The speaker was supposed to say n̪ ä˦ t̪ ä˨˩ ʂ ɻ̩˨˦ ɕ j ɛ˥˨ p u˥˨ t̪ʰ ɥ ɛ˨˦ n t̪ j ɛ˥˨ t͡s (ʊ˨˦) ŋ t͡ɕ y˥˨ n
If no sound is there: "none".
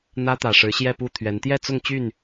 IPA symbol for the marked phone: ʊ˥˨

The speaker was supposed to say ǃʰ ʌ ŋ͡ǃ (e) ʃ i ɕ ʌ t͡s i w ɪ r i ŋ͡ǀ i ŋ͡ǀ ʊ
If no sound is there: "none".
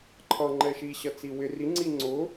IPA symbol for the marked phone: ɛ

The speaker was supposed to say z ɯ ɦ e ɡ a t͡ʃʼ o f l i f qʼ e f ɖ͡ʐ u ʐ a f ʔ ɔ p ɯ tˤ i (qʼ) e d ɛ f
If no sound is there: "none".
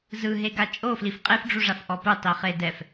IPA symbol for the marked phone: χ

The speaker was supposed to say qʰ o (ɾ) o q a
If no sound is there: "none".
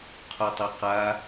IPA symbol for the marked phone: tˤ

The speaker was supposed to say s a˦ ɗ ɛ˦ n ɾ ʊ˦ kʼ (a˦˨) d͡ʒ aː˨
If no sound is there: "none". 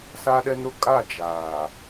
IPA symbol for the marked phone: a˦˨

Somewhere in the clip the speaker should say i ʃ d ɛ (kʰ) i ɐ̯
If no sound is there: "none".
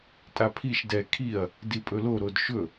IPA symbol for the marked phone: kʰ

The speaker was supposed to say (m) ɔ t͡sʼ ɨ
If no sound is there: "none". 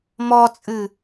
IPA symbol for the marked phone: m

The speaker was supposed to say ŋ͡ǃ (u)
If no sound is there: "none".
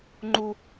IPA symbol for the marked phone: u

